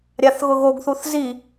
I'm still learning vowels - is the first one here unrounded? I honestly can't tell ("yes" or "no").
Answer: yes